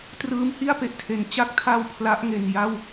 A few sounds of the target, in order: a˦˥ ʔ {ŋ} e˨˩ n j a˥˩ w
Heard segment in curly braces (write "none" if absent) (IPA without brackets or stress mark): ŋ